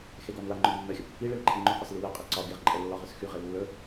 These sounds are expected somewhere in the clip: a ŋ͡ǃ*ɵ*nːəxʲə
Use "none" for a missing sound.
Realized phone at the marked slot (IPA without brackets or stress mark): ɵ